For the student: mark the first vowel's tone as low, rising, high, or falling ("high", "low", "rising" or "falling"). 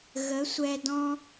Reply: rising